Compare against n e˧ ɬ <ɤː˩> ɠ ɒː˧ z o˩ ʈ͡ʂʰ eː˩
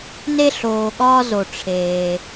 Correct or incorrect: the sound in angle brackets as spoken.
incorrect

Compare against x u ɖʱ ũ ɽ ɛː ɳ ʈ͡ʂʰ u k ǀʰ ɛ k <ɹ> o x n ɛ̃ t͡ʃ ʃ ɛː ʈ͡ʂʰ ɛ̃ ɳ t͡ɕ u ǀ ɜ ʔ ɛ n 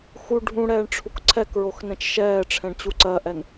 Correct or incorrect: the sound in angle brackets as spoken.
correct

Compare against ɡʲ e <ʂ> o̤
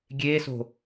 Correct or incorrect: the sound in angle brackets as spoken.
incorrect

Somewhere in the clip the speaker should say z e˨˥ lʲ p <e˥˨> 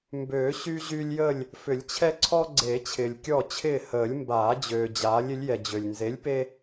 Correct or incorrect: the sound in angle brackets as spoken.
incorrect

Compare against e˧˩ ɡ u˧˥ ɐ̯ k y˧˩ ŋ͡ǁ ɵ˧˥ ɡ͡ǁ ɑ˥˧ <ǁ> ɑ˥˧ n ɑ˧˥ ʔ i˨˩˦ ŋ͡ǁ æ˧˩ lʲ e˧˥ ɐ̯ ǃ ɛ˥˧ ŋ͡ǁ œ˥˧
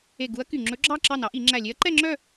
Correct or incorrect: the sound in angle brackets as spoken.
correct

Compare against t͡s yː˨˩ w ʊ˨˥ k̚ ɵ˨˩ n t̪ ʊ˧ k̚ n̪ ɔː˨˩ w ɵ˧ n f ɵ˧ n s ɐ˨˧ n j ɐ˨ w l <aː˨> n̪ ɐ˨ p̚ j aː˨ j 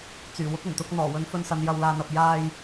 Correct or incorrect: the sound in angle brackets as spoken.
correct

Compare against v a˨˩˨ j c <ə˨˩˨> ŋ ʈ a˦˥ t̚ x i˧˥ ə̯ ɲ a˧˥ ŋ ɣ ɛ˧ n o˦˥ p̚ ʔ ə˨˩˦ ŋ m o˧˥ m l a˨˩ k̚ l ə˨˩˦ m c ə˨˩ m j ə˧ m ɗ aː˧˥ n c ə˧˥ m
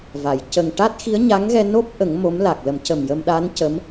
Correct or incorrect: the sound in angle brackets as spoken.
incorrect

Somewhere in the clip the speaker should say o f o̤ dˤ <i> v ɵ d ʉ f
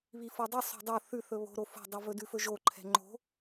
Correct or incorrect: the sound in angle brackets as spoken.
correct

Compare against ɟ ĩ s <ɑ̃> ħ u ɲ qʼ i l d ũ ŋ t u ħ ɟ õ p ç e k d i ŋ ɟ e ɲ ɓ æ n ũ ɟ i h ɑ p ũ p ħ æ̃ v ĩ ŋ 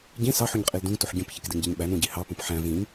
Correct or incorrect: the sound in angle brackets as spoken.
incorrect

